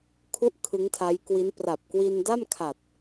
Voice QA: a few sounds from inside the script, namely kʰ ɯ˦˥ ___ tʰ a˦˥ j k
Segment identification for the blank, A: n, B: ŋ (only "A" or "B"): B